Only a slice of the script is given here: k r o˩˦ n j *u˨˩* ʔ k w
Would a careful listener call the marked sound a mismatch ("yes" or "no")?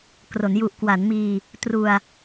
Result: no